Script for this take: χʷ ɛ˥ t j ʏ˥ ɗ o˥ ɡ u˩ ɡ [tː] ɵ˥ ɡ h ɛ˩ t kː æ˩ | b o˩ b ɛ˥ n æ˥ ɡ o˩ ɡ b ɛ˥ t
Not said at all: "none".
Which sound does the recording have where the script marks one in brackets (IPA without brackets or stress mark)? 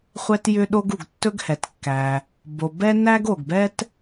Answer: tː